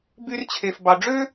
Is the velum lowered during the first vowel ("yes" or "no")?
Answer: no